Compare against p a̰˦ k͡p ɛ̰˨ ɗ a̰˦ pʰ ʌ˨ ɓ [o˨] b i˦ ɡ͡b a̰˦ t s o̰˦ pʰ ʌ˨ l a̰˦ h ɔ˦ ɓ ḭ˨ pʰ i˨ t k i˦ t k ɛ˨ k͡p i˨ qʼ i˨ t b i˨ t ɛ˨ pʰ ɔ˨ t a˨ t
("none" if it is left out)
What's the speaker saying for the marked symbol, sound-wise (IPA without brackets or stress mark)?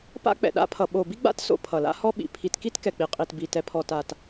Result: o˨